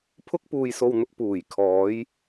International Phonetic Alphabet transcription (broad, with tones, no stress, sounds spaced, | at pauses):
pʰ ʊ˥ k̚ p uː˧ j s o˧ w n̪ ʊ˧ k̚ p uː˨˩ j kʰ ɔː˨˧ j